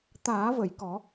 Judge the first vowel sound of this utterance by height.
low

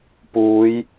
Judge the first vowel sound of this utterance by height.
high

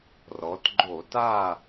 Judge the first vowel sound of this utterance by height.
mid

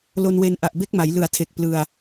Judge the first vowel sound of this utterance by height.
mid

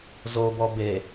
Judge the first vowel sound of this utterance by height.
mid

